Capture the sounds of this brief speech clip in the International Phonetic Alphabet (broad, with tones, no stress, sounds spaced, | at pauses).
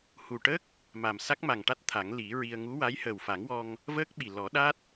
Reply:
h u˨˩ ʈ ə˦˥ k̚ | m a˨˩ m s a˦˥ k̚ m a˨˩ ŋ ʈ a˦˥ t̚ t̪ʰ a˨˩˦ ŋ l i˨˩˦ ɹ i˧ ə̯ ŋ u˧˥ w a˧˥ j h əː˨˩ w f a˨˩˦ ŋ w ɔ˧ ŋ | v əː˦˥ k̚ ɓ i˨˩ l ɔ˨˩˦ ɗ a˦˥ t̚